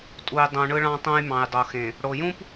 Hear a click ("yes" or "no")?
no